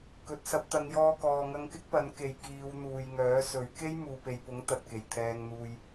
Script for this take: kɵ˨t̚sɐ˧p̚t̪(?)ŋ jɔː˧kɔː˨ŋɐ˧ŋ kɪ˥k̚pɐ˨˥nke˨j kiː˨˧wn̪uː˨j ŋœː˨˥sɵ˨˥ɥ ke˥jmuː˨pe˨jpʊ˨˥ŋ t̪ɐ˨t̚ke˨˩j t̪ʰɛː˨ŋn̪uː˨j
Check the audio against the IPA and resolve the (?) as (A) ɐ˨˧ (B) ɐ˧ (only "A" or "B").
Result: A